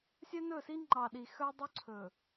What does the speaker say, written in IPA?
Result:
sʲ œ˦ n ɵ˦˨ s i˦ ŋ͡ǃ ɑ˨ ɗ i˨ x œ˦ dˤ ɵ˦ ǀʰ ɵ˨

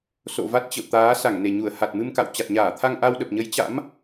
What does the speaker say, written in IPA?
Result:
s o̰˧˨ v a˦˥ t̚ t͡ɕ ə̰˧˨ w t̪ aː˨˦ s a˧˩ ŋ n e˧˩ ɲ u˧˩ ə̯ h a˨˩ t̚ m ɨ˧ m k a̰˧˨ w t͡ɕ a˨˩ t̚ ɲ aː˧˩ t̪ʰ a˧ ŋ ʔ a˧ w ɗ ə˨˩ p̚ ɲ ə˨˦ j t͡ɕ a̰˧˥ m

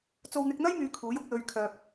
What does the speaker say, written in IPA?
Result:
t͡s o˧ w n̪ ɪ˧ k̚ n̪ ɐ˥ j m yː˨˧ kʰ uː˨˥ j ʊ˨˥ k̚ l ɵ˧ ɥ kʰ œː˧ p̚

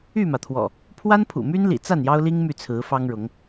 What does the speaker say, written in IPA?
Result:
y˥˨ m ä˩ t̪ʰ w ɔ̰˨˩ | pʰ w a˦ n pʰ ṵ˨˩ m y˦ n l ḭ˨˩ t͡s a˥˨ n j ɑ˦ ʊ̯ l i˦ ŋ m y˥˨ t͡sʰ ɹ̩˨˦ f ɑ˦ ŋ ɻ ʊ˨˦ ŋ

